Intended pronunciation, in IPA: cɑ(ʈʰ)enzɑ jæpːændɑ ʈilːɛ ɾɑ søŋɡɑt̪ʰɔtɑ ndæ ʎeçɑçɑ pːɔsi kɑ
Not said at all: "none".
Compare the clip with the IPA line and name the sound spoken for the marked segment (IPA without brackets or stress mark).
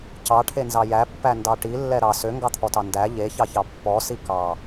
ʈʰ